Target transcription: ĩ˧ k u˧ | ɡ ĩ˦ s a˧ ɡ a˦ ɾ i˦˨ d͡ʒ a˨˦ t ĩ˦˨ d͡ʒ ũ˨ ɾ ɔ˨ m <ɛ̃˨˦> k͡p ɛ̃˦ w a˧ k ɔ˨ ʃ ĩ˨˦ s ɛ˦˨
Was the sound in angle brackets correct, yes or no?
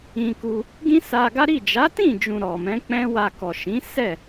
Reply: yes